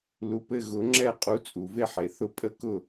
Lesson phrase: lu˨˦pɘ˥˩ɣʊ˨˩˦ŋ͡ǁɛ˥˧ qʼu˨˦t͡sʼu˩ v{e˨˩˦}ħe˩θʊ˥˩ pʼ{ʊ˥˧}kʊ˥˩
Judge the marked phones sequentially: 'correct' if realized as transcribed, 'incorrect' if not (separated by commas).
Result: incorrect, incorrect